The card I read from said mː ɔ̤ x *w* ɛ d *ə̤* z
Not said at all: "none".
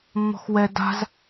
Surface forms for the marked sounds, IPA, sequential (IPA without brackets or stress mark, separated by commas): w, a̤